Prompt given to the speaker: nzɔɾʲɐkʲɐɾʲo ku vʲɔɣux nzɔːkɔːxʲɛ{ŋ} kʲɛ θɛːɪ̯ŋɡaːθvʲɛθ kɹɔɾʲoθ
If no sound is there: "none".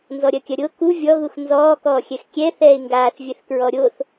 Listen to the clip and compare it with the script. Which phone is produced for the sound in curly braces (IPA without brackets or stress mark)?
x